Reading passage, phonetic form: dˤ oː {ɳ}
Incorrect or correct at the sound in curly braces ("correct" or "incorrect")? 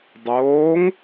incorrect